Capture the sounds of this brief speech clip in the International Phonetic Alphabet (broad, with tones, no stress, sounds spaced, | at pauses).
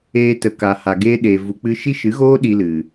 eː˧ t ə˨ k a˨ h a˨ ɡ eː˧ ɗ eː˨ v u˨ k͡p ɨ˧ ʃ i˦ ʃ ɨ˨˦ ɣ oː˦ ɗ i˧ l ɨ˨